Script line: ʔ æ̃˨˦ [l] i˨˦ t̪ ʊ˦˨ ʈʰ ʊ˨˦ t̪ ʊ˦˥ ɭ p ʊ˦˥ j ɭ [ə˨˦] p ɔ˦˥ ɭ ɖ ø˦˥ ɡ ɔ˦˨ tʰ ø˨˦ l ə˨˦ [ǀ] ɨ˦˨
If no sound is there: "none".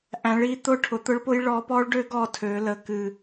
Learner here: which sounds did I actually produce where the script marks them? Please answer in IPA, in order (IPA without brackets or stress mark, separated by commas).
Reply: ɭ, ɔ˨˦, k